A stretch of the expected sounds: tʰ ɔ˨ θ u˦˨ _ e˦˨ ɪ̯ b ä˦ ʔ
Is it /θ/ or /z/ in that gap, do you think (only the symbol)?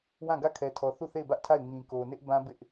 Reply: θ